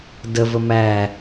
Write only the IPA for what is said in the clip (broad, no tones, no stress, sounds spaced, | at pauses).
d ə v ə m æ